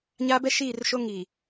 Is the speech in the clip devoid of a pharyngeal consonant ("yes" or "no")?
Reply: yes